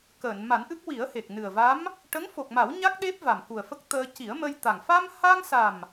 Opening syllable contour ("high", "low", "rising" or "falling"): low